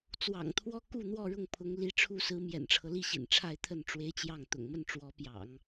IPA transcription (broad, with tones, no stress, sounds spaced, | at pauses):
t͡s w ɑ̰˨˩ ŋ t̪ʰ w ɔ˥ k u˥˧ n̪ w ɔ˥˧ ɻ ʊ˥˩ ŋ pʰ ʊ˧˥ ŋ l i˧˥ ʈ͡ʂʰ u˥ s ɹ̩˧˥ m j ɛ̰˨˩ n ʈ͡ʂʰ ɤ˦ l i˥˩ ɕ ḭ˨˩ n ʈ͡ʂʰ a˥˧ ɪ̯ t̪ʰ ə˥˩ n ʈ͡ʂ w e˥ ɪ̯ t͡ɕ j ɑ˥˩ ŋ t̪ ʊ̰˨˩ ŋ m ə˥˩ n ʈ͡ʂ w ɔ˧˥ p j ɑ̰˨˩˦ ŋ